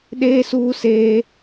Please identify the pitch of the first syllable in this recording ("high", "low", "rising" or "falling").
high